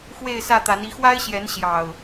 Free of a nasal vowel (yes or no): yes